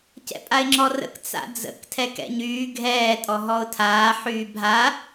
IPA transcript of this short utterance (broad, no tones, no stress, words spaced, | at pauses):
cɛ̰pʼaɪ̯ŋ͡ǁɔrə̰k t͡sa̰d͡zə̰k tʰɛkɛ̰ɲyː ɡʱɛː tʼɔɦɔʊ̯tʰaː ħyːbʱa